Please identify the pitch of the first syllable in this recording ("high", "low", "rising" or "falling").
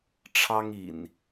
high